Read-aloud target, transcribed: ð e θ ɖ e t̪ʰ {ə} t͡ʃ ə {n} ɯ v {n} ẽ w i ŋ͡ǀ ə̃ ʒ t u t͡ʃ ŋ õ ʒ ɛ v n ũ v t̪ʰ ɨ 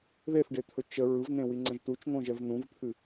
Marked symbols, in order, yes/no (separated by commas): no, no, yes